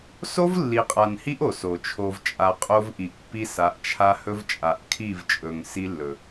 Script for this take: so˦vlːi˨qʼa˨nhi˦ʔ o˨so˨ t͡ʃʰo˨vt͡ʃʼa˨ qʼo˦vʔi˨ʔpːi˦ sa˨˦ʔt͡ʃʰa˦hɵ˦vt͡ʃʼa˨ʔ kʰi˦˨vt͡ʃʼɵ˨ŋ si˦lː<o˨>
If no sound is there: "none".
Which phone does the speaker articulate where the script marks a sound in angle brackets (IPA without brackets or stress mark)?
ɵ˨